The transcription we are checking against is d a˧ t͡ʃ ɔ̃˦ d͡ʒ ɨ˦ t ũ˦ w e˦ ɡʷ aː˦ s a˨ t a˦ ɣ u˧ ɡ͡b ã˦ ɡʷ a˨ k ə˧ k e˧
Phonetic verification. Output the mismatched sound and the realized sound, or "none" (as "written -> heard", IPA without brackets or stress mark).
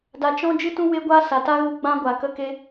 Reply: none